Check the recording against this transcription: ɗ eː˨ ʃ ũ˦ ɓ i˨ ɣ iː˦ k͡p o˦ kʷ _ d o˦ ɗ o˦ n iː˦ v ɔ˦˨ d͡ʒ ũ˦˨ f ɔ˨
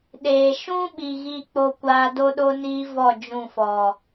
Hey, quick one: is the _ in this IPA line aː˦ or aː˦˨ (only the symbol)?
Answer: aː˦